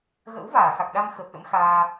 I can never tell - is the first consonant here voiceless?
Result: no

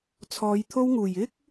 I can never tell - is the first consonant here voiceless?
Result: yes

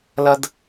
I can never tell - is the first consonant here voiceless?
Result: no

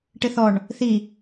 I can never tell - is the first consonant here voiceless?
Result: yes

